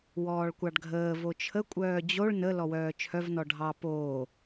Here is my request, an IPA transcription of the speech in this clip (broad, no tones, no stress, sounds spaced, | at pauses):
w ɔː ɭ kʷ ɑ ɖ ɡʱ əː v o t͡ʃʰ ə kʷʼ œː d͡ʑ o ɭ n ə l ɔ w œː t͡ʃʰ œ v n ɔ ɖʱ ɑ p oː